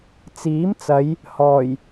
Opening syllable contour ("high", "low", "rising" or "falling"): rising